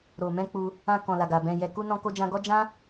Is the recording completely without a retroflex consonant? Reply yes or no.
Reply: yes